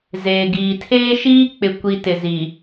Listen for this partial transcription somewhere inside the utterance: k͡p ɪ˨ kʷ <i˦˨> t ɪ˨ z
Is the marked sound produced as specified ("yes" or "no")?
no